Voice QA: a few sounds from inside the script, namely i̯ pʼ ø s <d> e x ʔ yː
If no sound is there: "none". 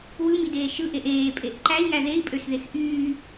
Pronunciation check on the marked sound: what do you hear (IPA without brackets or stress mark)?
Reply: ð